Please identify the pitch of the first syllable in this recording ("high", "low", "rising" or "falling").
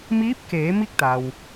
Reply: rising